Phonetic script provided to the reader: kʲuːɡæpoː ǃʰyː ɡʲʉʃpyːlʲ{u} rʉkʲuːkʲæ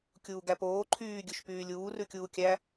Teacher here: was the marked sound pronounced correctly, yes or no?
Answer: no